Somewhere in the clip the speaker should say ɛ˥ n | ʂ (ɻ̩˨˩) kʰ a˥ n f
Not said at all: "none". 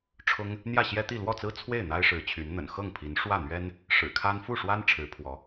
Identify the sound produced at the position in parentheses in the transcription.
ɻ̩˨˩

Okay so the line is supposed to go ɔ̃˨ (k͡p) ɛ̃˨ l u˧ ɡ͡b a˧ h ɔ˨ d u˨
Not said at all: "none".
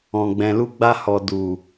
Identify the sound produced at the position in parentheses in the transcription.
ɡ͡b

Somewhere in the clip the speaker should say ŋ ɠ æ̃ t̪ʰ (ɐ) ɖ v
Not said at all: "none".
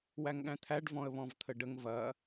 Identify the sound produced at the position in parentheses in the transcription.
æ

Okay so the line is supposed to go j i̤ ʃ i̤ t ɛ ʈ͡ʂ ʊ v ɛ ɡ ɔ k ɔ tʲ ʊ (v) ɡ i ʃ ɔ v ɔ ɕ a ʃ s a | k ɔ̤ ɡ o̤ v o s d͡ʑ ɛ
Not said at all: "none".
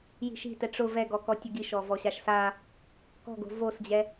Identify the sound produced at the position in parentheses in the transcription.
none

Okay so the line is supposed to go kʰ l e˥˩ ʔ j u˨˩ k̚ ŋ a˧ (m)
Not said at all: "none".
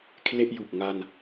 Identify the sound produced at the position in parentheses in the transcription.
n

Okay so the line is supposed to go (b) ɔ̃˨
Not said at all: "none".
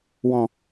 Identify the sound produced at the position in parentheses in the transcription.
w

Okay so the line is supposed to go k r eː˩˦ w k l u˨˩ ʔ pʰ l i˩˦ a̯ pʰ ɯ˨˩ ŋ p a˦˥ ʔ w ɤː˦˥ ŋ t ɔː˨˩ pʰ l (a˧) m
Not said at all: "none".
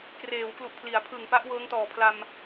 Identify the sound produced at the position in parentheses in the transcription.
a˧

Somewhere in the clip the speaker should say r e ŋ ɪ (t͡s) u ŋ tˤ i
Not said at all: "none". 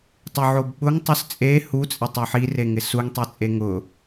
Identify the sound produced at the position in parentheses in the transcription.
s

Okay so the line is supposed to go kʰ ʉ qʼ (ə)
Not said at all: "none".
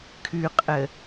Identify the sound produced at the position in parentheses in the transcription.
ə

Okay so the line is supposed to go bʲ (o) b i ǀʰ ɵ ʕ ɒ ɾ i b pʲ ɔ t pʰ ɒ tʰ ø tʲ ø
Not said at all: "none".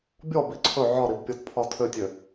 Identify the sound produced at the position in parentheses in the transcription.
ɔ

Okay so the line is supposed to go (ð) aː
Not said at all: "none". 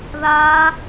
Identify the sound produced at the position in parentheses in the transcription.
ð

